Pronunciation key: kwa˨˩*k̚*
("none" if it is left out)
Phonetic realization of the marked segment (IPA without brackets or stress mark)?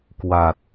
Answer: t̚